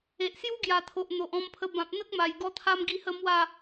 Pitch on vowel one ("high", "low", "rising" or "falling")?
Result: low